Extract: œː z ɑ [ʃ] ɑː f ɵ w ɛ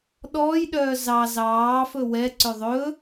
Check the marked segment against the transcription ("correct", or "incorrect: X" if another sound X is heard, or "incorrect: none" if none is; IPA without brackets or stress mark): incorrect: z